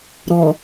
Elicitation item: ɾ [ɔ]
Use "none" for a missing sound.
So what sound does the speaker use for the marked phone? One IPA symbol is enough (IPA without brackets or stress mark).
ɔ